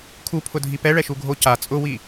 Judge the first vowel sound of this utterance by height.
high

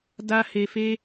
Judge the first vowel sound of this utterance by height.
low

